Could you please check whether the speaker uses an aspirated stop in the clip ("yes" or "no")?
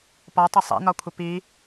yes